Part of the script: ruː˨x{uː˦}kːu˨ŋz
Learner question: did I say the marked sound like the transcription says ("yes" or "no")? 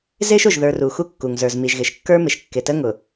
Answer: no